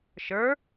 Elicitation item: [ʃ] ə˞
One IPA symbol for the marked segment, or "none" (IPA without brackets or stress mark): ʃ